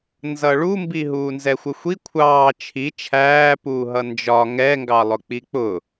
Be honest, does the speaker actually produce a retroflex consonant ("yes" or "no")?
yes